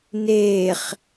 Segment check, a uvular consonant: present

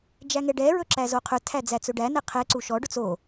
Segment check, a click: present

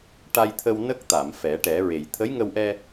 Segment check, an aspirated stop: present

